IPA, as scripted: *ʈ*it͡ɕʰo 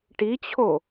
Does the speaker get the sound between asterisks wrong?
no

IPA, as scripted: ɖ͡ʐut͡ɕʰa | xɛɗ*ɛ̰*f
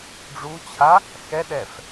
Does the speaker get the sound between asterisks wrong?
yes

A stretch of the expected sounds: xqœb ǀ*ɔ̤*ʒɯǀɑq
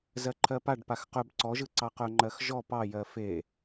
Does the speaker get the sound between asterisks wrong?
yes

